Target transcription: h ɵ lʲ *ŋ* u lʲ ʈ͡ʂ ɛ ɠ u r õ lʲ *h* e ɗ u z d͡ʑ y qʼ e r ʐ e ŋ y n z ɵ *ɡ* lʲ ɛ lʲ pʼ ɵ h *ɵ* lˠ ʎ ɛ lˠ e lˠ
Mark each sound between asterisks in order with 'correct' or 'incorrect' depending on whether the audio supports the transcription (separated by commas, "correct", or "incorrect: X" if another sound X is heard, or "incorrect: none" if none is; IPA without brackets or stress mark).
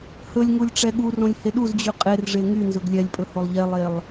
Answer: correct, correct, correct, incorrect: o